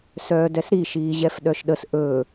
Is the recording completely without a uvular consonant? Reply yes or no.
yes